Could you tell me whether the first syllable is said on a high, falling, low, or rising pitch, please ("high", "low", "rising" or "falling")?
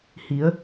rising